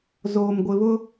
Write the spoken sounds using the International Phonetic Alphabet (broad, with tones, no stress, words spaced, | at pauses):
zoː˨mɡʷɪ˨βʊ˦